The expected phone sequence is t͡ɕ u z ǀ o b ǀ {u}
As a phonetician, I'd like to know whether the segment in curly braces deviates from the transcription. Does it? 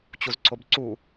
no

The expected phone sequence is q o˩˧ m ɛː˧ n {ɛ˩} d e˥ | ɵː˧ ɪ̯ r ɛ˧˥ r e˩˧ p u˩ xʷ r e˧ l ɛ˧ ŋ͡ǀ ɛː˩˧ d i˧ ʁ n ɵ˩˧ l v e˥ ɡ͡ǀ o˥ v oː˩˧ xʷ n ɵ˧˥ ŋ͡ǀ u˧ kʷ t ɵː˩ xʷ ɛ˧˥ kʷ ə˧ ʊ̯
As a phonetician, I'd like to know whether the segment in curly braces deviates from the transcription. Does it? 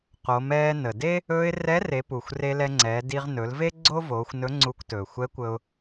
yes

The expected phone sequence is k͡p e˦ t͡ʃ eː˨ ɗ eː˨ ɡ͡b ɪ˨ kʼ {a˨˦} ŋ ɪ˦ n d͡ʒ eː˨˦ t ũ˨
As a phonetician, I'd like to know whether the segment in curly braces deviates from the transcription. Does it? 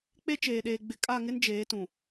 yes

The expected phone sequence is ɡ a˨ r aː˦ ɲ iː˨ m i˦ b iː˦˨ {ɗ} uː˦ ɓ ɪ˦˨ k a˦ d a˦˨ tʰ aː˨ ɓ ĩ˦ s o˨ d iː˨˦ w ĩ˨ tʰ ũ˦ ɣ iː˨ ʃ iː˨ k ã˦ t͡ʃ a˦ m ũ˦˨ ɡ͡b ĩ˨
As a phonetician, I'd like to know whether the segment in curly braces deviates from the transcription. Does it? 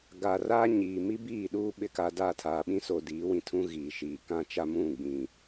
no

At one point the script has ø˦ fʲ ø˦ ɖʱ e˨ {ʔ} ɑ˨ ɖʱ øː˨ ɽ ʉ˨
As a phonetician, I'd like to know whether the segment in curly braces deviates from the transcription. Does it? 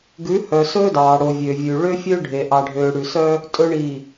no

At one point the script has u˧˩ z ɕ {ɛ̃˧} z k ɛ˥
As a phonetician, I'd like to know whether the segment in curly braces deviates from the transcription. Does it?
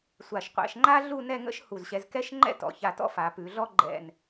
yes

